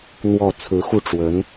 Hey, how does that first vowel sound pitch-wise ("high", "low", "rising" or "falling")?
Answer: falling